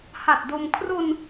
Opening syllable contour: low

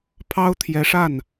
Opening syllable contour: high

